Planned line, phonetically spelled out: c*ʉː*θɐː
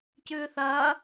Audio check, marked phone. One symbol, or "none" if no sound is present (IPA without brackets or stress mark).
ʉː